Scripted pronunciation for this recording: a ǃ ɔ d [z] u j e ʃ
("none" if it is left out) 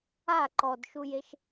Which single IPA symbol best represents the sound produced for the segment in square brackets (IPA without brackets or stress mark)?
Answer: ʃ